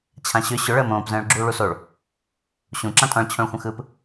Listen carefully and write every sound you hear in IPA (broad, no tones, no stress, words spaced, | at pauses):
t͡ɕʰãɕʏ ɕʏ ɭəːmõːpzə̃ːɭ ɡ͡ǁuːɭusoɭ | ɕũ ǁãtʼɔ̃ɭ t͡ɕʰõɭxʷə̃xɯp